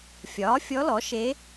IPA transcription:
fʲ ɒː˩˥ fʲ ɔ˧˥ l ɔ˩˥ ʃ e˧˥

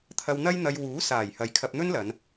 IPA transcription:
t̪ʰ ɐ˧ w n̪ ɐ˥ j n̪ ɐ˧ j w uː˨˥ s aː˨˩ j h ɐ˨˧ j kʰ ɐ˧ p̚ n̪ ɵ˥ n l ɐ˨˧ n

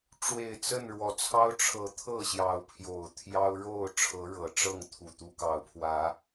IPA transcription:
ʈ͡ʂ w e˨˩ ɪ̯ t͡s ə˥˨ n ɻ w ɔ˨˩ t͡sʰ ɑ˦ ʊ̯ ʈ͡ʂʰ ɤ˨˦ t̪ʰ ɤ˥˨ ɕ j ɑ˨˦ ʊ̯ pʰ j o˨˩ ʊ̯ t̪ʰ j ɑ˦ ʊ̯ ɻ o˥˨ ʊ̯ ʈ͡ʂʰ ɤ˨˦ ɻ ɤ˨˩ ʈ͡ʂ ɤ˥˨ ŋ t̪ʰ u˨˩ t̪ u˦ k ɑ˨˦ ʊ̯ pʰ w ä˨˦

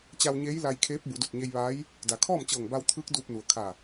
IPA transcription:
t͡ɕ a˧ w ɲ eː˧˥ j l a˧ j kʰ eː˧˥ p̚ b u˩˧ d u˧˩ t̚ ɲ e˧ j ʋ aː˧˥ j | d a˩ kʰ ɔː˥˨ m t͡ɕ ɤː˧˩ ŋ b a˧ w t̪ʰ ɯː˧˥ k̚ d uː˧ p̚ n u˩ ə̯ kʰ a˧˩

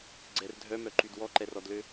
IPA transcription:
ɡ͡ǀ ɛ r dʱ œ m œ ǃ y d w ɔ ǃ ɛ r ɔ d l ø

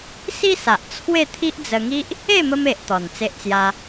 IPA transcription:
s i˦ s a˨ ʔ t͡sʰ w e˥˧ t̪ʰ i˦ ʔ d͡z ə˧ ŋ i˦ ʔ | e˥˧ m ə˧ m e˨ ʔ t̪ ɔ˨˩ n t͡s e˦ ʔ t͡s j a˦

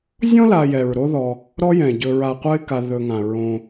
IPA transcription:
zʲ ɔ̃˥ l a˨ j ɛ˩ ɹ ɾ o˦ ð ɔ˨ | ɾ ɔ˦ j ɛ̃˩ ɟ ɵ˨ ɹ a˨ qʷ ə˦ ɪ̯ k a˨ ð ɵ˨ ŋ ã˩ ɹ õ˨

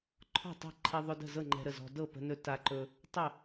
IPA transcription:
ǃʰ ɔ̤˥˩ tˤ ə̤˥˩ ǃʰ e˧ ðˤ ʊ˧ d ə̤˥˩ z ɤ˥˩ ŋ͡ǃ ɛ̤˧ ɾ ə˥˩ z ɔ̤˧ d ɤ˥˩ p ə̤˧ n ɵ˧ t a˧ ǃ ɵ˧ | tˤ ʊ˥˩

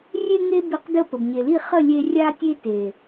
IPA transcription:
rʲ e˦ ŋ e˦ b i˧ q d ə˦˨ p ə˨ b ɲ e˨ l i˦˨ χ ə˦˨ lʲ e˧ rʲ a˦ tʲ e˦ t e˨

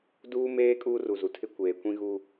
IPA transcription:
d uː˦ m eː˦ kʼ uː˦ r u˨ z u˨ tʰ ɪ˦ kʷ eː˨ kʷ ĩ˦ ɣ u˦

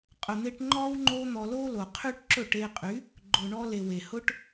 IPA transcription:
qʼ ʊ˨ n̪ e˧ ʈ ŋ͡ǃ ɔ˦ w ŋ͡ǃ o˦ n̪ ɔ˧ l o˦ l o˨ qʰ y˦ ʈ ǁ ɵ˦˨ ʈ e˧ qʼ y˨˦ | ɡ͡ǃ ʊ˨ ɳ ɔ˧ l e˨ w e˨ h ʊ˦ ʈ

